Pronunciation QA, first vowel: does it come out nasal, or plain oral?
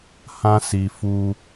nasal